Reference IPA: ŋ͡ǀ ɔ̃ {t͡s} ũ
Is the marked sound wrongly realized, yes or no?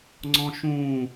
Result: yes